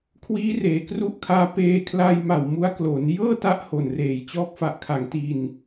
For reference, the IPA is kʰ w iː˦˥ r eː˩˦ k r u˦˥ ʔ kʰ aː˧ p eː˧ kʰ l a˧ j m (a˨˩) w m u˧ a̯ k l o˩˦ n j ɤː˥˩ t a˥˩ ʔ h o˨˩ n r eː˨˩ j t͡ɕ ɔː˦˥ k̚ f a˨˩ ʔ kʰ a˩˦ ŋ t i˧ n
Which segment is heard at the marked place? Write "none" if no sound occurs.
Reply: a˨˩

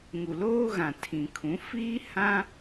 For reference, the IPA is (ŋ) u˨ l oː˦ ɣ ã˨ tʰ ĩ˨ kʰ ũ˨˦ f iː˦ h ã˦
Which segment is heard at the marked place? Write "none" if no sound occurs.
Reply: ŋ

